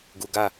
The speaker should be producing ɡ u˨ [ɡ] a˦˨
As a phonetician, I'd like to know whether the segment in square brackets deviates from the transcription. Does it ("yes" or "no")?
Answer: no